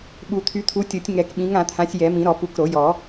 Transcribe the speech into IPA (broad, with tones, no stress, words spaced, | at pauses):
ɓu˨˩˦t̪ʰy˨˦t̪ʰu˨˦tʲo˨˩˦tʲ ŋɛ˨˩˦k ɓĩ˨˦ŋã˨˩˦t̪ʰã˨˦sʲ jɛ˨˩˦mĩ˨˩˦ɾɔ˨˩˦ pu˨˦kɾo˨˩˦jɔ˨˩˦